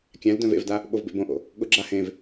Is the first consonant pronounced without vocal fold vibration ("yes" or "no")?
yes